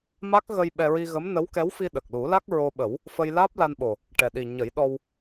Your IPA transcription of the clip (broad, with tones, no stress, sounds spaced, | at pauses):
m a˦˥ k̚ ɣ ə˧ j ɓ ɛ˧ ɹ i˧ ɣ ə˧˥ m n ə˧˥ w k ɛ˧˥ w f i˧ ɗ ə˨˩ k̚ l u˨˩˦ l a˦˥ k̚ ɹ o˧ ɓ ə˨˩˦ w | f ə˧ j l aː˦˥ p̚ l a˧ n ɓ o˨˩ | ʈ ɛ˨˩ ɗ i˨˩ ɲ ə˨˩˦ j ɗ ɔ˧ w